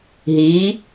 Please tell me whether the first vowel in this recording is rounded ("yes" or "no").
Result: no